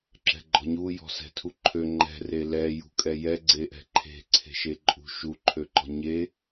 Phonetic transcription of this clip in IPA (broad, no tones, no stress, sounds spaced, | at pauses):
ǁ ɛ̤ ɡ͡ǃ ɔ̤ ɲ u j ɔ̤ s ɛ̤ tʰ u ǃʰ ø ŋ͡ǃ ɛ̤ r e l ɛ j ṳ kʼ ɛ j ɛ ɡ͡ǀ e ʔ ɛ̤ ǃʰ e̤ ǀʰ e̤ ʃ e ǃʼ ṳ ʃ u ǃʰ ø ǃ ɔ̤ ɲ e